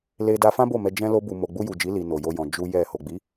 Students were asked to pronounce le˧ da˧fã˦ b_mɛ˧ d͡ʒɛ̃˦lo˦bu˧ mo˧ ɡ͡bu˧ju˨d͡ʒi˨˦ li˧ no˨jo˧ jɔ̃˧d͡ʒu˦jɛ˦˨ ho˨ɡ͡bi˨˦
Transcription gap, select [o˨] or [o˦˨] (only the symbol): o˦˨